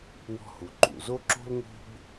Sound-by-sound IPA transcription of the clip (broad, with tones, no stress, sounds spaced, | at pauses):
w ɔ̤˧ h u˩ ǃ ṵ˩ z o˥ ǁ o̤˥ l ŋ o̤˥ b